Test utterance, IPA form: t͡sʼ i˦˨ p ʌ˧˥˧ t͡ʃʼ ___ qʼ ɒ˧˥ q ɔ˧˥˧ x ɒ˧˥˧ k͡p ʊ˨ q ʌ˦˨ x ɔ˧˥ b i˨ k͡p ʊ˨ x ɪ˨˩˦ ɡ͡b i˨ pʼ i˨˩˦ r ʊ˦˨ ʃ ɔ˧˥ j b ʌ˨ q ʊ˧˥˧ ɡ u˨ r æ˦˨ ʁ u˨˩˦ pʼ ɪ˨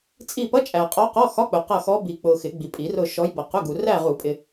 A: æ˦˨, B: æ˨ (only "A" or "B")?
B